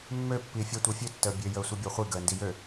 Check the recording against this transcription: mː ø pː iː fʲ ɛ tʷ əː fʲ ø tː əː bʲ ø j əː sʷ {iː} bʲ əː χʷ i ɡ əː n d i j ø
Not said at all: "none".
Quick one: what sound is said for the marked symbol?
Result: i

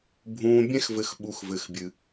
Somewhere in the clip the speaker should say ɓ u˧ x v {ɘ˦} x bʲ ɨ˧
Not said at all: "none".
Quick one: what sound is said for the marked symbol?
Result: ɘ˧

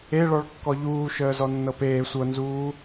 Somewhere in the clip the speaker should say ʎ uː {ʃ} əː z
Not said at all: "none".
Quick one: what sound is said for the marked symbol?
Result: ʃ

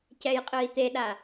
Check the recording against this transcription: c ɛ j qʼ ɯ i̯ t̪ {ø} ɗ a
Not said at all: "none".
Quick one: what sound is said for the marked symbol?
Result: e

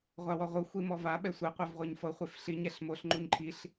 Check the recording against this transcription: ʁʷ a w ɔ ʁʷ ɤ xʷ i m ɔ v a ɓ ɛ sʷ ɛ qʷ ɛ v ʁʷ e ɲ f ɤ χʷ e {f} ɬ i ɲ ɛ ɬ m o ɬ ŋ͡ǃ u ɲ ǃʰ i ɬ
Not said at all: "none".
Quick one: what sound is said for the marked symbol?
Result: f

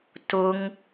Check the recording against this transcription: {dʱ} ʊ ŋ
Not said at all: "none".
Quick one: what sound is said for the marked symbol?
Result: t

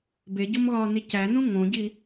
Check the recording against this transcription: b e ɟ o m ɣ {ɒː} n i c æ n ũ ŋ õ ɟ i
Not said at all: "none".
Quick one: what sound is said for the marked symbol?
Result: ɒː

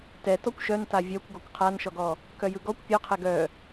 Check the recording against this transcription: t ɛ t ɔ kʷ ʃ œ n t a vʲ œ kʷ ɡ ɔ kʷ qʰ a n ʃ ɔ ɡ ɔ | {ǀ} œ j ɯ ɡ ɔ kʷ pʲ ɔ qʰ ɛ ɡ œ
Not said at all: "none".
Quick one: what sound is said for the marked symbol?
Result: k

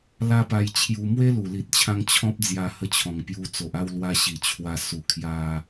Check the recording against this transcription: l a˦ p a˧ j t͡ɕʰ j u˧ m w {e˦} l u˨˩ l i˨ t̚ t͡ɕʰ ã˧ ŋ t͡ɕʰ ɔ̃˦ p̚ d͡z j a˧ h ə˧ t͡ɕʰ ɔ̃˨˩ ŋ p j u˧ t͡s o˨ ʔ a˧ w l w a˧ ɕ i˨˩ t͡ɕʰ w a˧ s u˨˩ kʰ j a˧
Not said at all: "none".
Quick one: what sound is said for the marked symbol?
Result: e˦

